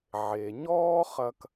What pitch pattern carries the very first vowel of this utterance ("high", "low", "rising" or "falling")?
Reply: low